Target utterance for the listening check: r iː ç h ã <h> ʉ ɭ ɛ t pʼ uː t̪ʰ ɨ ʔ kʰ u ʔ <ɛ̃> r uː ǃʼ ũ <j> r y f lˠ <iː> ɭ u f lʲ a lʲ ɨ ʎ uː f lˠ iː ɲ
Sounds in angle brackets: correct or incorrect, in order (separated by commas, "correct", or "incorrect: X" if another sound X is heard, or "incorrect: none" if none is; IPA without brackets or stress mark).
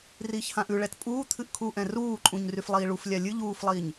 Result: incorrect: ʔ, correct, incorrect: ɲ, correct